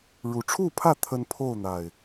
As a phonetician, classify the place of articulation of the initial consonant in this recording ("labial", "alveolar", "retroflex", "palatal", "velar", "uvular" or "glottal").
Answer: retroflex